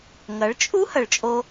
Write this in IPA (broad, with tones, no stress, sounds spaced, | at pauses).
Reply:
ŋ ɐ˨˦ ɭ t͡ʃʼ u˦ h ɐ˨ ɭ t͡ʃʼ o˧